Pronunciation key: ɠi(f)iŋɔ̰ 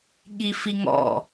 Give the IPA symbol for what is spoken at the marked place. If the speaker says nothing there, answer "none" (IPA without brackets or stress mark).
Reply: f